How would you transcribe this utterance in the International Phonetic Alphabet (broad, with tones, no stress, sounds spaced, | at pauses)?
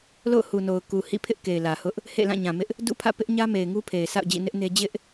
l o̰˦˨ ʊ̯ h u˨ n o˨ ʊ̯ k u˨ h ḭ˦˨ pʰ ɪ˦ ʔ k e˨ ɪ̯ l ä˨ h ʊ˦ ʔ | h ḛ˦˨ l ã˦˨ ɲ ã˨ m ɪ˦ ʔ | d ṵ˦˨ pʰ ä̰˦˨ p ɪ˦ ʔ ɲ ä˦ m e˨ ɪ̯ ŋ u˦ pʰ e˨ ɪ̯ s a̰˦˨ ʊ̯ d͡ʑ ḭ˦˨ n ɪ˦ ʔ n e˦ d͡ʑ ɪ˦ ʔ